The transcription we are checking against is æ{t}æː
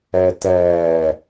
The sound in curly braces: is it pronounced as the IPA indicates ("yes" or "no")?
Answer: yes